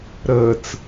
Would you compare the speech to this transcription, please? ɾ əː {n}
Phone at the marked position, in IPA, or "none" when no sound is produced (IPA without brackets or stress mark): t͡s